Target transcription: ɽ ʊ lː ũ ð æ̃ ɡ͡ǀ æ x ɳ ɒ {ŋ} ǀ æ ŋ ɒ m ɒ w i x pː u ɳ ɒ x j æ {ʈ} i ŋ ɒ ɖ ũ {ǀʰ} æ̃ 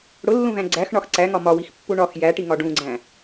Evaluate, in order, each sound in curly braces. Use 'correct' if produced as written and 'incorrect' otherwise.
incorrect: x, correct, incorrect: ɡ͡ǀ

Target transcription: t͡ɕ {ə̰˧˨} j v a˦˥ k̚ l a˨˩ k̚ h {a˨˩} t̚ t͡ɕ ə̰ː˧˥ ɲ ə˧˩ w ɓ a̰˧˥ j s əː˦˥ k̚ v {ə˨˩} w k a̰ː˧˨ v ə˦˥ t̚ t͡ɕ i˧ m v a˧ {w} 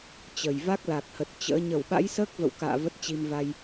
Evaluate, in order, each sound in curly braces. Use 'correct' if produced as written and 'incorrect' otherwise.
incorrect: ə˨˩, incorrect: ə˨˩, incorrect: ə̰˧˨, incorrect: j

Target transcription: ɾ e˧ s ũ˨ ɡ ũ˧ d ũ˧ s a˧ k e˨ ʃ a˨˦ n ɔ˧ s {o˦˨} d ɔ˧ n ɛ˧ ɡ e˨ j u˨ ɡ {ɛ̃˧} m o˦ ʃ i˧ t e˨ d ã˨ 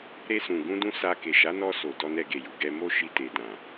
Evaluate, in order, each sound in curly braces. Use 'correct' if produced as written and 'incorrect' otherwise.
incorrect: o˨, incorrect: ɛ˧

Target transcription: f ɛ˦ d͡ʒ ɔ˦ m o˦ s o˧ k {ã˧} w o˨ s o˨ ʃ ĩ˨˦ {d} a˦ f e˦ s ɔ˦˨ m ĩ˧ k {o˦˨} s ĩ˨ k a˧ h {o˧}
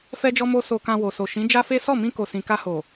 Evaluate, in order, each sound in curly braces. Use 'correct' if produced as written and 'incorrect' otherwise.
correct, incorrect: d͡ʒ, incorrect: o˨, incorrect: o˨

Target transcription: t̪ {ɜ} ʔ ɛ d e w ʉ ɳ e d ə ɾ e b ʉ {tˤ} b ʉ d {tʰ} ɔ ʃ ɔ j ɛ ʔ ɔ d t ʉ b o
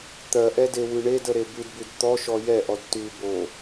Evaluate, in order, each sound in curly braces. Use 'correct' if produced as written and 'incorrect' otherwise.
correct, incorrect: d, incorrect: t̪

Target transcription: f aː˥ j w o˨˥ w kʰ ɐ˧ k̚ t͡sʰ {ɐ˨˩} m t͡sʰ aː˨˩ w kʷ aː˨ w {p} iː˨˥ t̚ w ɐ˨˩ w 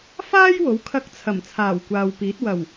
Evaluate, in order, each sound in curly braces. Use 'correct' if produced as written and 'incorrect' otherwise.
correct, correct

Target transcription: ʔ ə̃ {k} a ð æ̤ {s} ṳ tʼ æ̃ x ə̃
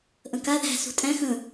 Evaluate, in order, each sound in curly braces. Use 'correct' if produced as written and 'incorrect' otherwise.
correct, correct

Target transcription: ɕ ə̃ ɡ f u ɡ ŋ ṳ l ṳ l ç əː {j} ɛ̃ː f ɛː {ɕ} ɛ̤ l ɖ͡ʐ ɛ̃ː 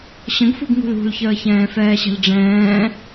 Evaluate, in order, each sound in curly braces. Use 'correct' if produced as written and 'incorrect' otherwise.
incorrect: ç, correct

